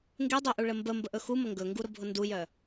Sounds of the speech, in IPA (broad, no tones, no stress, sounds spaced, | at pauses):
ŋ ɡ e dˤ o ʔ u ɭ ə m b ə m b ə ʔ ɵ x u m ə ŋ ɡ ɵ ŋ ɡ u ɾ ʊ bʱ ʊ n d u j œ